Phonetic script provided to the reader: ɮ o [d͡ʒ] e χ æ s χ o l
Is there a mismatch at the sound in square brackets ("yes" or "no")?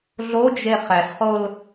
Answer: no